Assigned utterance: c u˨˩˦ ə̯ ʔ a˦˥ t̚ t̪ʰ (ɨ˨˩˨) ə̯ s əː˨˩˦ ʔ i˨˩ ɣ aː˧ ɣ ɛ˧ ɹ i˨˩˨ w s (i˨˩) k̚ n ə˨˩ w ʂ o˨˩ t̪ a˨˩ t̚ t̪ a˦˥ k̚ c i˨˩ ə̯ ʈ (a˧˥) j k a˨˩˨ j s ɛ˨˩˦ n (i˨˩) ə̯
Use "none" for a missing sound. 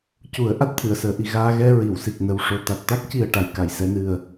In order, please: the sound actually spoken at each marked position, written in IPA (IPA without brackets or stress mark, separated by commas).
ɨ˨˩˨, i˨˩, a˨˩, ɨ˨˩